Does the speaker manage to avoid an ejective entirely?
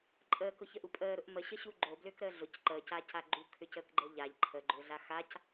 no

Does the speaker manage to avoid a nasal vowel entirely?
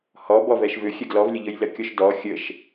yes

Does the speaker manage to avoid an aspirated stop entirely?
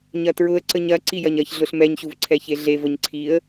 no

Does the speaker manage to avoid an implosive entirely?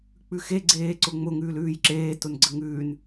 yes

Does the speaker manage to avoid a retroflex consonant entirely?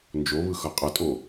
yes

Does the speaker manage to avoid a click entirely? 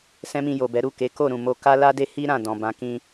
yes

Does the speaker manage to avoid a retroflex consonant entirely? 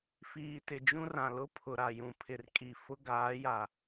yes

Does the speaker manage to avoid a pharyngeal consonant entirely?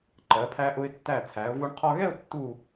yes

